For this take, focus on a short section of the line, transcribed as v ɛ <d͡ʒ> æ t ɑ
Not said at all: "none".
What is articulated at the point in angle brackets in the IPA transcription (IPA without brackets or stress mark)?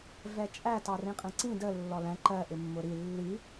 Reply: t͡ʃʼ